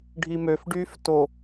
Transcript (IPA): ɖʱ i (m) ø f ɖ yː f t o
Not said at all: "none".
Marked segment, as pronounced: m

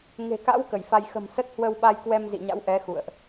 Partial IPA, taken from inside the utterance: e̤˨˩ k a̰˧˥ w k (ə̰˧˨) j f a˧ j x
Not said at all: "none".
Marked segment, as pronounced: ə˧˩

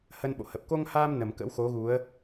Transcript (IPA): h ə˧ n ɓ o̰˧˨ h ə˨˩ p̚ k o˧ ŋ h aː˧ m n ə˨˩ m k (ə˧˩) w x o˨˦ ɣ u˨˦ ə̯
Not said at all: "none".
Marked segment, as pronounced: ə̰˧˥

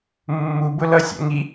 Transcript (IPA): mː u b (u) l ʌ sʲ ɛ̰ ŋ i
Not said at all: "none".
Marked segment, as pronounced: ʊ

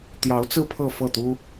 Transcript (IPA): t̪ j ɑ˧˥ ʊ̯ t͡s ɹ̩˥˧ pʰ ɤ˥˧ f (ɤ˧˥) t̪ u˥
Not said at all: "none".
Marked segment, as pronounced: ɤ˥˩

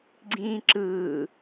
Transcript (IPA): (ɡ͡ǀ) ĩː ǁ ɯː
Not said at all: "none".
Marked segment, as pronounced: ɡ͡ǀ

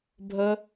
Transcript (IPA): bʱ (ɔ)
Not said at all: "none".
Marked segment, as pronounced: ə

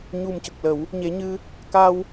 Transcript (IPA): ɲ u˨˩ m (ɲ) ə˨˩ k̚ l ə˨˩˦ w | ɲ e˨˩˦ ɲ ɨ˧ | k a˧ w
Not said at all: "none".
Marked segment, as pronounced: c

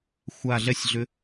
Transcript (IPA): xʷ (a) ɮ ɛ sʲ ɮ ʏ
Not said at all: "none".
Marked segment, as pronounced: a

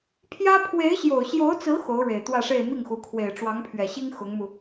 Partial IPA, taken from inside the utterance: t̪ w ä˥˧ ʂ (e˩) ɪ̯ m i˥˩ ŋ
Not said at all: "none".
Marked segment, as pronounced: e˥˧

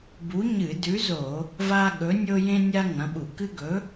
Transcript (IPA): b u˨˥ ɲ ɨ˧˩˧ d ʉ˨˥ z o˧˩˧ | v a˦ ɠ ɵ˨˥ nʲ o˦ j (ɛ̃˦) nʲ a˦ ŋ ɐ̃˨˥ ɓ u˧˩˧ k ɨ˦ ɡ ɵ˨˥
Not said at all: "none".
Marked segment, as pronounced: ẽ˦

